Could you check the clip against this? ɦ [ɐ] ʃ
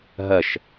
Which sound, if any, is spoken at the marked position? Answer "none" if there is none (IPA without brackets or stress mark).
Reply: ɐ